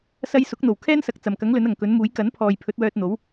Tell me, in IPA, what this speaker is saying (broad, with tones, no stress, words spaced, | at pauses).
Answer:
sɐ˧jsʊ˨˥k̚n̪o˨˩w kʰɛː˥nsɐ˨k̚ t͡sɐ˨˩mkɐ˨˥ŋ lɵ˨˥nɐ˨˩ŋkɵ˨˥nmuː˨˥j kɐ˨˥npʰɔː˨j pʰɵ˨˥t̚wœː˧t̚n̪o˨˥w